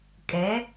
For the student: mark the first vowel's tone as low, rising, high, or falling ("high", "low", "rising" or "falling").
rising